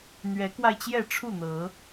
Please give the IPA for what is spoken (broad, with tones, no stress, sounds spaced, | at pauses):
n̪ ɥ ɛ˨˦ k w a˧ ɪ̯ t͡ɕ j ɛ˥˨ ʈ͡ʂʰ u˥˨ n̪ ɤ˨˦